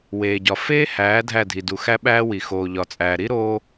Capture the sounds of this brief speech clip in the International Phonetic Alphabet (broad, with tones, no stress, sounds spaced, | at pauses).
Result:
w eː˨ ɟ ɒ˨ f eː˦ h æː˨˦ dʱ æ˦˨ dʱ i˨ d u˨ x æ˦ ɓ æː˦ w i˨ x oː˨ ʎ ɒ˨ t͡sʼ æː˨ ɾ i˦ ɾ oː˦